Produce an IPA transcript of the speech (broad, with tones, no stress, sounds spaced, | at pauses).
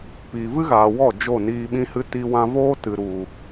p iː˨ v ɨ˦ ɣ aː˨ w ɔ˦˨ d͡ʒ o˦˨ n iː˧ ɓ ĩ˦ h ɨ˦ t i˧ w ã˧ v oː˦ t ɨ˨ ɾ u˨